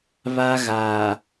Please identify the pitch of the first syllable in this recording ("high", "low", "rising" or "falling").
high